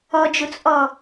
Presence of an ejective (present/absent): present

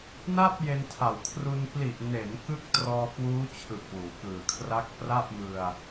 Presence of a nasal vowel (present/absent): absent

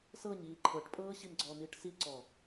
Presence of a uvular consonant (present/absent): absent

